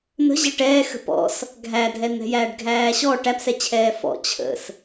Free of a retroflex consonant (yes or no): no